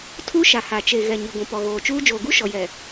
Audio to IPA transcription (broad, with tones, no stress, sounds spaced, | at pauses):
tʰ u˦ ʃ a˨ h a˨ t͡ʃ e˨ ɣ ɛ˨ ɲ i˨ ɡʷ ũ˨ p ɔ˨ ɣ oː˨ t͡ʃ uː˦ d͡ʒ oː˨ ɡ u˦ ʃ ɔ˨ j ɛ˨